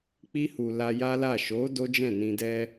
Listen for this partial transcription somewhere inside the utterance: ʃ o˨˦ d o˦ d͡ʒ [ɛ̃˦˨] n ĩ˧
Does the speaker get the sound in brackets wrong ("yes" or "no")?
no